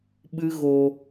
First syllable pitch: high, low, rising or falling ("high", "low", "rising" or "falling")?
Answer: high